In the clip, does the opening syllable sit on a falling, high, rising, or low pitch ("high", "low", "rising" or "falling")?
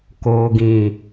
low